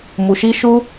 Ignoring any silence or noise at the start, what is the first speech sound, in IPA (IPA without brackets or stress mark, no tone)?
m